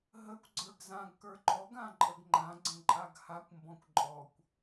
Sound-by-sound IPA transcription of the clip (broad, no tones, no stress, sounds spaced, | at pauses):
ɦ ə kʷ ɡ͡ǀ ə˞ ɡ z ã ɡ k ə˞ ǃ ɔ ɡ ã ǃʼ ə ɡ ŋ͡ǃ ã ɡ͡ǀ ə̃ ǃʼ a ɡ h a kʷ m b ɔ̃ kʷ ǃʼ ɔ kʷ